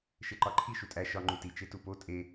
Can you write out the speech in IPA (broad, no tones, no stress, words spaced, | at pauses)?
ʃeǃɒǃʰi ʃutʼæ ʃɒ ŋ͡ǃuti t͡ʃetupo tʼe